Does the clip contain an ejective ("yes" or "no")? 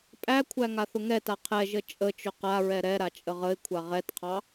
yes